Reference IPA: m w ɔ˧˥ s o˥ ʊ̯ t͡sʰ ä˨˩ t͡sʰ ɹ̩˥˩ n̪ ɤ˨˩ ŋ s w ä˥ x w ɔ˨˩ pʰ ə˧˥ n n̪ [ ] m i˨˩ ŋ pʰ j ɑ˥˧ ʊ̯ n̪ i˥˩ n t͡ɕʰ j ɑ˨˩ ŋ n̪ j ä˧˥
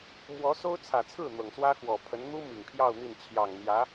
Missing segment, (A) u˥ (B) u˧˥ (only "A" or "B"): A